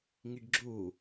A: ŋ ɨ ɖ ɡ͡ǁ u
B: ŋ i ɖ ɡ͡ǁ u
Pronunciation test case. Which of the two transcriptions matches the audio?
B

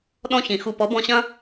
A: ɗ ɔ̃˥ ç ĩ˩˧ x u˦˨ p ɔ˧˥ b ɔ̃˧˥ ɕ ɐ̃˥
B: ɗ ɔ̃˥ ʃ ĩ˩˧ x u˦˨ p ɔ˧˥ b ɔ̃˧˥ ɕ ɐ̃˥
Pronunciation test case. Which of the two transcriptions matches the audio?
A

